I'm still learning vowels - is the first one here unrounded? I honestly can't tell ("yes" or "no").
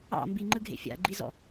yes